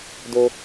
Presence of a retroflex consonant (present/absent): absent